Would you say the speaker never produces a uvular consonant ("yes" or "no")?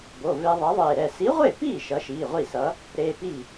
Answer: no